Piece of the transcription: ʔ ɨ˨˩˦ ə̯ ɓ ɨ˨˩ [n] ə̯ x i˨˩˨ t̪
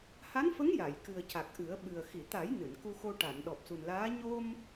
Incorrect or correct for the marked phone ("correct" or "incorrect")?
incorrect